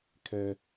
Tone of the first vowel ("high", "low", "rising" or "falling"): high